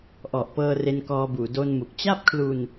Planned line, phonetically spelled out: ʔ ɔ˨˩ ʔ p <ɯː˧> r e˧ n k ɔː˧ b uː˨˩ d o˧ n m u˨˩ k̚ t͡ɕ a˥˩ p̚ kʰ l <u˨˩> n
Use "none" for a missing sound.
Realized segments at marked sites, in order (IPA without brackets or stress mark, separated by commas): ɤː˧, u˧